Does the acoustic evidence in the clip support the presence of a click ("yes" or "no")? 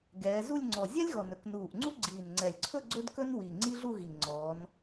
yes